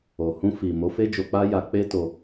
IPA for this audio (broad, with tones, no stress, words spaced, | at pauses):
o˨hũ˧ fi˨ mo˨˦fe˦d͡ʒo˧k͡pa˦ ja˧k͡pe˦to˧